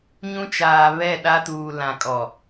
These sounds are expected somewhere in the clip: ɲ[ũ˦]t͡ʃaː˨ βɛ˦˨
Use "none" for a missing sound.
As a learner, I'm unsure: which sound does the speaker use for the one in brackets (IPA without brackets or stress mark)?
ũ˦